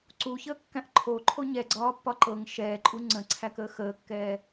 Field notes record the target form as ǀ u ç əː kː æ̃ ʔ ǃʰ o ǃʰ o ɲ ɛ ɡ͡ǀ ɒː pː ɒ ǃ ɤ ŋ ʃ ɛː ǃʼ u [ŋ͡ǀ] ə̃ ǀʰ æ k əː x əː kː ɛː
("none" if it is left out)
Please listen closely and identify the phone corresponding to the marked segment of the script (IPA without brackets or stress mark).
ŋ͡ǀ